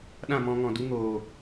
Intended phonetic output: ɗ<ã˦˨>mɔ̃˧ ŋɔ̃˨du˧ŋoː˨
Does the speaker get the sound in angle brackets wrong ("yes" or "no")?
no